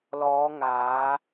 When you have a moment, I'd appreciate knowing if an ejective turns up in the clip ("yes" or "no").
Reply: no